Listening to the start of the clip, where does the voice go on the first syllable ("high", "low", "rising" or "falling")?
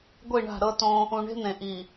falling